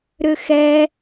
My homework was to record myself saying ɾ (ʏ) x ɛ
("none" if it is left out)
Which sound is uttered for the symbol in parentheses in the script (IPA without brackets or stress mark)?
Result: ʏ